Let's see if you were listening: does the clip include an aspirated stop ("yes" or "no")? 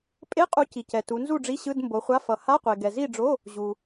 no